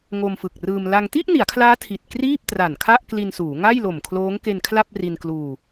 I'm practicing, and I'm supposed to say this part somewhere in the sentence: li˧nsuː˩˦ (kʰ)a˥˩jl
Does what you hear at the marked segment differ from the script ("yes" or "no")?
yes